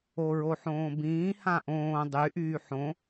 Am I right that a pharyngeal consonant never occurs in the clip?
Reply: no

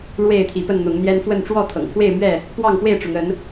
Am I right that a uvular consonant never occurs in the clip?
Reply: yes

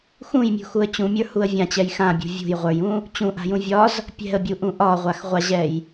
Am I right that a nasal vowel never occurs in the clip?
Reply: no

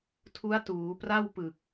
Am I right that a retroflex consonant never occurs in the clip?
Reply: yes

